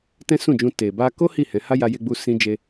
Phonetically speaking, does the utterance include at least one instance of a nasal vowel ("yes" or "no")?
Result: yes